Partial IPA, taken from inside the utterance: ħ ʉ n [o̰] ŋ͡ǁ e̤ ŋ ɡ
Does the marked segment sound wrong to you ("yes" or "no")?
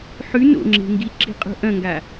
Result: no